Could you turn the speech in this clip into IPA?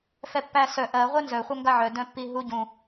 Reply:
f ɛ pː æ s œ ʔ ɜ ʁʷ ɜ n z œ χʷ œ ŋ ɡ a ʕ œ d œ̃ pː i ɦ u ɟ ũ

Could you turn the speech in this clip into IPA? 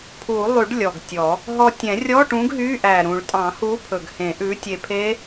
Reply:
pʰ u˨˩˦ lˠ y˨˩˦ ɖ lʲ ɔ˨˩ ɡ tʲ ɔ˨˩˦ | ɦ ɔ˧ tʲ ɛ̃˨˩˦ rʲ ɔ˧˥˧ ʈ ũ˨˥ ɡ ɦ y˧˥˧ ʔ æ˨˩ ɾ ũ˨˩˦ ɭ tʼ ɑ̃˨˩˦ h u˨˥ pʰ ɵ˨˩ ɡ h ẽ˨˩˦ ʔ ʉ˨˥ tʲ e˧ pʰ e˦˥

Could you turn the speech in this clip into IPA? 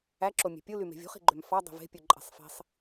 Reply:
æ ǁ o mʲ e̤ pʲ u l y m e̤ vʲ ṳ χ i̤ ɡ͡ǃ ø m f ɑ dˤ i̤ v e̤ pʲ u ǃʼ e̤ sˤ f i̤ sˤ

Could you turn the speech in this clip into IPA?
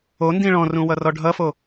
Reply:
o n d ĩ ɭ ɔ̃ r ũ w ʌ r ɔ ɖʱ ʌ f o

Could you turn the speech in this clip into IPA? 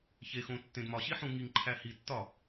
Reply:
ç e x õ tː ẽ d m ɒ ɕ i ħ ũ ŋ i ŋ ǃʰ æ h i tː ɒ

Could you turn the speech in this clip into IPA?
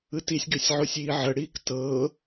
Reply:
ɯ t i sʲ ɡ ø sʲ ʕ o sʲ iː ʕ ə ɽ iː k t ɤ

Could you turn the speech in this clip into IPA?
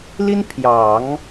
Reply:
l i˥ n pʰ j ɑ˨˩˦ ŋ

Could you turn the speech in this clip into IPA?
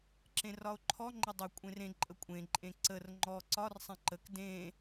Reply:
ǁ ẽ r ɒ o̯ ǃʰ ɔ ŋ͡ǃ ə dˤ ə kʷʼ ẽ r ẽ ǃʼ ə kʷʼ ẽ ǃʼ ẽ ǀ ə r ŋ͡ǃ ɔ ǀ ɒ r sˤ ẽ ǃ ə k d ẽ

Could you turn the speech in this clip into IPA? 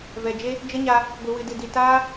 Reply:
v ɛ˨ d͡ʒ e˦ | d͡ʒ ə˦ ɲ a˧ | ɡʷ ɨ˨ w ɨ˨ d ɨ˨ d i˨ t aː˦

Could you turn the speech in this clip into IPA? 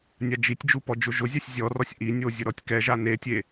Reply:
nʲ a d͡ʒ i tʲ d͡ʒ u p ɔ d͡ʒ ʊ ʒ ʊ zʲ a sʲ zʲ ɔ r ɔ sʲ ʔ i nʲ o zʲ ʊ ɾ ɔ tʲ k ɛ ʒ a n e tʲ e

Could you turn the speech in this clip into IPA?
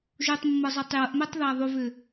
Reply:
ʒ u tˤ mː ɤ zˤ ɜ tˤ j ɤ ʔ m ɛ tˤ ð a ðˤ u v ʏ

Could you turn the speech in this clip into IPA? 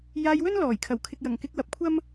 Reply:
j aː˧ j w ɵ˥ n l ɔː˨˩ j kʰ ɐ˨˩ w kʰ ɪ˨ k̚ j ɐ˨˩ ŋ k ɪ˧ k̚ w ɐ˨ p̚ kʷʰ ɐ˥ m

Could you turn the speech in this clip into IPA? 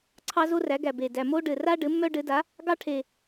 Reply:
ǀʰ ɑ˥ z o˥ r æ˩˥ ɡ æ˨˩ b e˨˩ d æ˨˩ m o˥ ɖ ɘ˨˩ r a˥ ɖ ɘ˩˥ mː œ˥ ɖ ɘ˩˥ d a˩˥ | ɡ ɑ˥ ʈʰ e˨˩

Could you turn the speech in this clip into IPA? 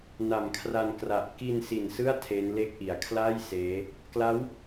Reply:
n a˨˩ m kʰ r a˧ n k r a˨˩ ʔ k i˧ n s i˨˩ n s ɯ˥˩ a̯ tʰ e˦˥ n l e˥˩ k̚ ʔ i˩˦ a̯ kʰ l a˥˩ j s eː˦˥ | k l a˦˥ w

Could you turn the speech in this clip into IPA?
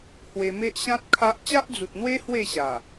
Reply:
h w e˧ m e˦ ʔ ɕ ã˦ t̚ kʰ a˦ ʔ t͡ɕ a˦ ʔ d͡z u˨ t̚ n̪ w e˦ h w e˥˧ ɕ a˨˩

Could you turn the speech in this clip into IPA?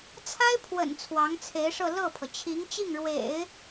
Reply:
t͡sʰ a˥ ɪ̯ pʰ w ə̰˨˩ n t͡sʰ w ɑ˧˥ ŋ t͡sʰ e˧˥ ɪ̯ ʂ ɤ˥˧ l ɤ˥˩ pʰ ɤ˩ t͡ɕʰ i˧˥ ŋ t͡ɕ i˥˩ ŋ ɻ w ḛ˨˩˦ ɪ̯

